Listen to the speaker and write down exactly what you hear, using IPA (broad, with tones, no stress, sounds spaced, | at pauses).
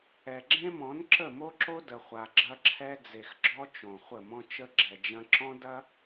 ɛ˨ ɡ͡ǁ ẽ˦ m ɔ̃˨˦ n ǁ ə˦˨ m o˦ ǁ o˦ d ə˨ χʷ a˨ ɡ͡ǁ ɐ˦ ǁʰ ɛ˦ d͡z e˨ x ɡ͡ǁ ɔ˦ t͡ʃ õ˨ χʷ ə˦˨ m ɔ̃˦ t͡ʃ ə˦ ɡ͡ǁ ɛ˨ d͡ʒ ɐ̃˦ ǁ ɔ̃˦ d ɐ˦